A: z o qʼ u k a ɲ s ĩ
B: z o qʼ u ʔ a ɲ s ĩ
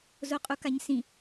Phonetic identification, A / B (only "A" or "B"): A